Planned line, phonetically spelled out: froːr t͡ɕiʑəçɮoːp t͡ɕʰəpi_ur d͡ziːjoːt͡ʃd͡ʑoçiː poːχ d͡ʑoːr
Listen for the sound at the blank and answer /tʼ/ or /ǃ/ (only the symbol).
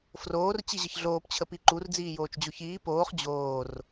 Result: ǃ